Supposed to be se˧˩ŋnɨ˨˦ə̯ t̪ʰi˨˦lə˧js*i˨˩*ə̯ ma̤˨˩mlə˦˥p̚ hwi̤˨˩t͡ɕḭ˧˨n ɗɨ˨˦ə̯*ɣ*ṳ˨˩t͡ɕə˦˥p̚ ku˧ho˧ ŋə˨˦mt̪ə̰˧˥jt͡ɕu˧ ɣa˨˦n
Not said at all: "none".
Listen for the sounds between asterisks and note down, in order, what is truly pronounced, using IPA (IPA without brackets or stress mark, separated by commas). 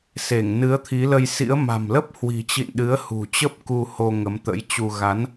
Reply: ḭ˧˥, h